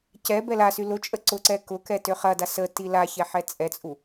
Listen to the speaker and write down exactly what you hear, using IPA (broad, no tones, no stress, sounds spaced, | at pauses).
c ɛ b ɛ l a s y l ʊ t͡ʃʼ ə ǀ ʊ ǀ ɛ k ʊ k ɛ t ø χ ɐ d a s ə t i l a ç ɛ ħ ɛ t͡sʼ ɛ t͡sʼ u